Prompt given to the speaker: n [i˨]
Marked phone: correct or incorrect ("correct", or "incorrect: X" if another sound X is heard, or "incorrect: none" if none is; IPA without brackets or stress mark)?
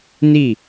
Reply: incorrect: i˦˨